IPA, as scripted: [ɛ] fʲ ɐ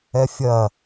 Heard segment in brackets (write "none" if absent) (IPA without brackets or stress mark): ɛ